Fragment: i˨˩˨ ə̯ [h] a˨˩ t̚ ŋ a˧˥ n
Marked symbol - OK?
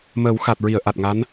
no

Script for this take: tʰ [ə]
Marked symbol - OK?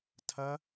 no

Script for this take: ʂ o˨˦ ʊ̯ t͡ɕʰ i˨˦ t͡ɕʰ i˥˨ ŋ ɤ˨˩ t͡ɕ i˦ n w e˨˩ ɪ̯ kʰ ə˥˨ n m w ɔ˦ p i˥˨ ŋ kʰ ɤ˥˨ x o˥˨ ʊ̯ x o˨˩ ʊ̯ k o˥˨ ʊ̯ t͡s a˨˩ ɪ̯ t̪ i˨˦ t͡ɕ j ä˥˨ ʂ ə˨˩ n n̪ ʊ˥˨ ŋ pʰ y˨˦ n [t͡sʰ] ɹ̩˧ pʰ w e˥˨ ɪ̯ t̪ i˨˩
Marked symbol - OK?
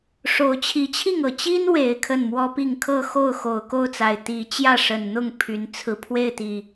yes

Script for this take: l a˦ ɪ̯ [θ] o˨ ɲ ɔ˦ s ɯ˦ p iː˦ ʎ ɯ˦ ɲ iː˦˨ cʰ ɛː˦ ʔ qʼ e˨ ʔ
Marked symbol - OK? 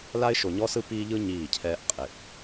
no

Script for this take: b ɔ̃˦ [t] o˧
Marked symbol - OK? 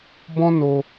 no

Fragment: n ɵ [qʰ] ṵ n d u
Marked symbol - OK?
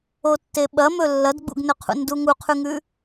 yes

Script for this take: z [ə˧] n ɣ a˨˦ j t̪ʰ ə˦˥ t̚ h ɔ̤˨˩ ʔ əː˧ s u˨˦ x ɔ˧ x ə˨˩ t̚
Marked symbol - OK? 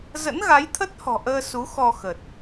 no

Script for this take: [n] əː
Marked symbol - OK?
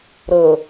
no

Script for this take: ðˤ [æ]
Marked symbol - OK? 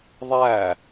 yes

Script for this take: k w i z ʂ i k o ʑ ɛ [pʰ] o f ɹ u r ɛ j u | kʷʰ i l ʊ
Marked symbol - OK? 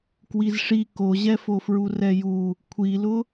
no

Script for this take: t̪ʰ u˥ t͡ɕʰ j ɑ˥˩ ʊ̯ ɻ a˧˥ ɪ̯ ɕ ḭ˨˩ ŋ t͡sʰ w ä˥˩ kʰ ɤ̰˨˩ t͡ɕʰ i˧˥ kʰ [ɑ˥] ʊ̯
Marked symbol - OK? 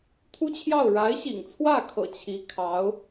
no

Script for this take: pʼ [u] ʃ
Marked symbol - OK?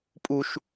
yes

